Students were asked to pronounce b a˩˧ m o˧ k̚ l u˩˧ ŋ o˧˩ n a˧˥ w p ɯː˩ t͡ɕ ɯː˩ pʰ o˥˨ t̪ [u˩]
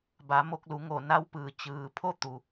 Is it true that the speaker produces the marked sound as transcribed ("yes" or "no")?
yes